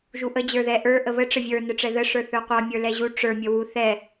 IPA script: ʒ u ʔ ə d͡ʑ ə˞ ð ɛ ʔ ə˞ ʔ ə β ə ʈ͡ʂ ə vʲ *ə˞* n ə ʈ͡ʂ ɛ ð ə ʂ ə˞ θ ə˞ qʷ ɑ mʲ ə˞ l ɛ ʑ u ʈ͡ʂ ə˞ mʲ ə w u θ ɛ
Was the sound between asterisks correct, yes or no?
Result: yes